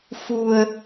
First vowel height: high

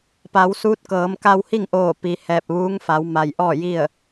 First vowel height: low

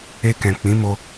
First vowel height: mid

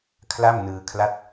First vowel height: low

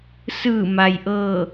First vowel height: high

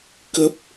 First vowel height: mid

